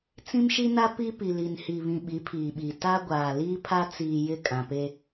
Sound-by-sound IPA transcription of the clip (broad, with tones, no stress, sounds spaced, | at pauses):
t͡s ĩ˦ m ʃ i˦ n a˦ p i˦ p i˨ l i˨ n h i˨ β ĩ˨ ɓ i˨˦ pʰ iː˨ ɓ i˨ t a˦ ɡʷ aː˨ l iː˦ pʰ a˦ t͡s iː˨ j ɪ˦˨ kʼ ã˨ p e˦